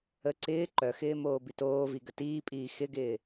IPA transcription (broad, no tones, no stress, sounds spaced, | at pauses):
ə ǀ ɪː ǃ œ x ɪː m oː b i t oː v i ɡ ə t iː pʼ iː x ɪ ɡ ɪː